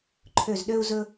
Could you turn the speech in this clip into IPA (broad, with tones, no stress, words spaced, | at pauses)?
ǃʰø˧˩zɗø˦u̯zɵ˦